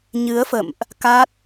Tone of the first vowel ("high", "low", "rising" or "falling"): rising